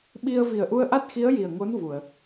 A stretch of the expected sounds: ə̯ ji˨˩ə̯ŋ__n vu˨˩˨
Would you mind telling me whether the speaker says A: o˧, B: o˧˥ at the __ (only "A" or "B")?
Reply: B